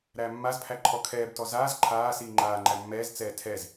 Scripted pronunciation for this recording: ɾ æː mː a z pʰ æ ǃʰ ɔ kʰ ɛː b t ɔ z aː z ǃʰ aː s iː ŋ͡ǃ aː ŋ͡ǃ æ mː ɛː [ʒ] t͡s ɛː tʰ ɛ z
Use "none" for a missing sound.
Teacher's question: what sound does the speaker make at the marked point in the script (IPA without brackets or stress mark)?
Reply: z